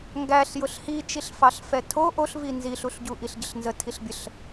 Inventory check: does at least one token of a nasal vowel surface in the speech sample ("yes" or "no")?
no